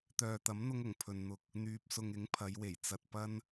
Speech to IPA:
t̪ œː˨ t̪ ɐ˨˥ m n̪ ʊ˧ ŋ ʊ˨˩ ŋ pʰ ɵ˨ n n̪ ʊ˧ k̚ | n̪ yː˨ p̚ s ʊ˨ ŋ ɪ˨˥ ŋ pʰ ɐ˨˧ j w e˨˩ j t͡s ɐ˨ t̚ p ɐ˥ n

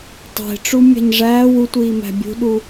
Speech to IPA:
tˤ e̤ ʈ͡ʂ u mʲ æ̤ ɲ ʐ æː w u tʷ iː m æ̤ bʲ ṳ ɗ u

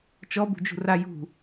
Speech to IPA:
t͡ʃ ɔ b ṳ d͡ʒ ṳ r a j ṳ

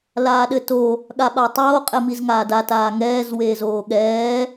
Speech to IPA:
l aː ɗ ɘ t o | ɠ a ɓ a tˤ oː qʼ ɛ m i z ŋ aː d a t aː ŋ ɛː z w eː z oː ɠ ɛː

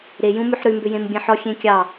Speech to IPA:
ɾ e j ũ m ʉ ħ ɾ ʉ m b ʏ j ẽ m bʲ ẽ ħ ɔ xʲ ẽ kʲ ɑ

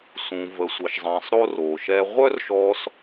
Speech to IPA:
s ũ˩ v ə˩ sʷ ə˩ ʃ zˤ ɛ̃˩ sˤ ɾ o˧ r o˩ ʃ ɛ˧ ʁʷ œ˥ r ʃ ɔ˧ s

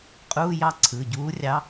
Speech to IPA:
qʼ uː˧˥˧ j ɑ˥˧ ǀʰ ɯ˩˧˩ ɟ uː˧˥ rʲ ɑ˧˥

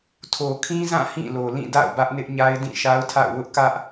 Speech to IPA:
tʰ o˨ kʰ ĩ˦ z ã˦˨ h ĩ˦˨ l o˨ l ĩ˦˨ d a̰˦˨ ʊ̯ b ä˦ ʔ n ɪ˦ ʔ ɲ a˦ ɪ̯ d ĩ˦˨ ʃ a˦ ʊ̯ tʰ a̰˦˨ ʊ̯ w ʊ˦ ʔ k ä˦ ʔ

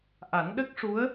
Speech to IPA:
ʔ a˨˩˦ n ɗ ə˦˥ k̚ ʂ u˧˥ ə̯

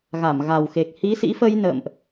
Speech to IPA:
ɣ a˧˩ m ɣ a˨˩ w x e˨˩ k̚ h i˨˦ s ḭ˧˥ f ə˧ j n ə̰ː˧˨ m ʔ

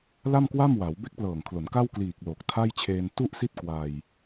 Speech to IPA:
l a˥˩ m k w a˥˩ m w a˩˦ w b e˦˥ k̚ p l ɤː˨˩ ŋ kʰ l o˩˦ n k a˥˩ w k l iː˨˩ k̚ l o˨˩ k̚ tʰ a˥˩ j t͡ɕʰ eː˧ n t u˥˩ ʔ s i˥˩ t̚ k w a˧ j

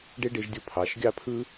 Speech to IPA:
ɖ e˦ ɖ e˧ ʒ dʲ o˧ pʰ ɑ˨˦ ʃ ɡʲ ɑ˦ pʰ ɯ˦

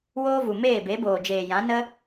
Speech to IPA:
w oː˦ v u˨ m eː˦˨ b e˨˦ b oː˨ d͡ʒ eː˨ j ã˨˦ n ə˦

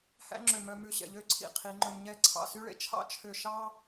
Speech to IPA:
h æ̰˥ ŋ͡ǁ ø˧˩ m œ˧ m ʉ˧ ɕ ɛ̰˩˧ ʎ ø˥˧ ǀʰ ḭ˩˧ qʰ i˩˧ ŋ͡ǃ ɵ˧ m ɲ ɛ˥˧ ǀʰ ɑ̰˧˩ s y˥ ɭ ḛ˧˩ t͡ʃʰ ɑ̰˥ t͡ʃʰ ø˧˩ ʃ ɑ˥

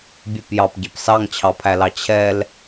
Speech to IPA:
bʲ e p j ɑ p ɟ e p s ɑ ŋ t͡ɕʰ ɑ pʰ æ l ɑ t͡ɕʰ ɛ l

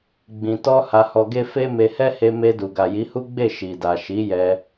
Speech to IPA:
ɡ͡b ĩ˨ t ɔ˧ h a˧ h ɔ˧ ɡ e˦ f e˦ m e˧ h ɛ˦ h e˧ m e˧ d u˨ ɡ a˨ j i˨˦ h u˦ ɡ͡b e˦˨ ʃ i˨ d a˨ ʃ i˨˦ j ɛ˧

